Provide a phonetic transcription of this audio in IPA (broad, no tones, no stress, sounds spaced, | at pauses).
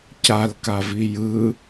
c a l k a v i j ɯ